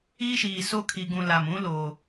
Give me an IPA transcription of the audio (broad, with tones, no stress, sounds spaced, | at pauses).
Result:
iː˦ ʃ iː˨ s o˦ kʰ i˨ ɡ ũ˨ l a˨ m ũ˦ l oː˨